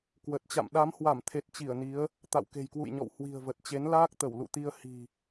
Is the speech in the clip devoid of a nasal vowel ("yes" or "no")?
yes